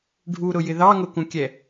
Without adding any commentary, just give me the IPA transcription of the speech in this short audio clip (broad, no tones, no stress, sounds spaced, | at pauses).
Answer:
ɖʱ u ɾ ʊ j ɪ ð ɑ ŋ ʊ k ũ kʲ ɛ